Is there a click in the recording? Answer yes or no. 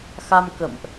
no